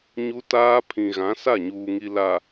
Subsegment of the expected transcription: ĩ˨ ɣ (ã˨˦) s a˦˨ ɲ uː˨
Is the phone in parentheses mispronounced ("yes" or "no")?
no